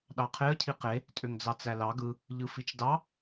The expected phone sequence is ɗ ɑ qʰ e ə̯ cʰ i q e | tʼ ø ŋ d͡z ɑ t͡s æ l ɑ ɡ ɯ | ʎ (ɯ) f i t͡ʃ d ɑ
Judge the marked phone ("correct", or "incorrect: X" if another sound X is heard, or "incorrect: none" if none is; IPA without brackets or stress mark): correct